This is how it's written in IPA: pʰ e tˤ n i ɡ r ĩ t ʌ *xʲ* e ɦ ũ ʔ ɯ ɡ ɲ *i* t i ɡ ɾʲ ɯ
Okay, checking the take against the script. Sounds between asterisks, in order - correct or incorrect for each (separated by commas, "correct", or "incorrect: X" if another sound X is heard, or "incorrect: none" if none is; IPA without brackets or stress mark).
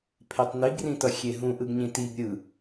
correct, incorrect: ĩ